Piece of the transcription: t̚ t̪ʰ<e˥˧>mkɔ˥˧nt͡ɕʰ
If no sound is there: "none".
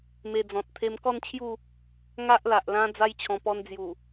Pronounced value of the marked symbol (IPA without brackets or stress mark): e˧